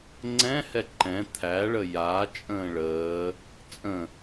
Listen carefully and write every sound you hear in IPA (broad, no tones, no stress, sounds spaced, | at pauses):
ŋ͡ǀ ɛ̃ h ɛ ǃ ɛ̃ t̪ʰ æ ɭ ə j a t͡ʃʼ ə̃ː ɭ əː | t͡sʼ ə̃